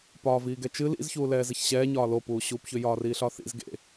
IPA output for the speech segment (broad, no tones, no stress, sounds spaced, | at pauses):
p ɒː v iː ɡ ɛ t͡ʃ ɨ l ḭ z ç uː l ɛː z e ç ɕ ɛː ɲ ɒː l o p uː ɕ uː p ç ʏ j ɒː r iː ɬ ɒ θ ḭ z ɡ ḛ